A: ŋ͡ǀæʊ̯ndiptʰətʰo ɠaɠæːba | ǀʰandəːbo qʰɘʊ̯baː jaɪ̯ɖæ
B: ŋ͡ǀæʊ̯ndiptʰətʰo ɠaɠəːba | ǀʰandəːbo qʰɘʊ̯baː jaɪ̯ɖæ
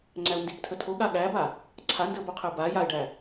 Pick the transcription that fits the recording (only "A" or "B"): A